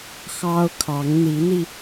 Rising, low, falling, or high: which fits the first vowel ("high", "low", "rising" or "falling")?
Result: high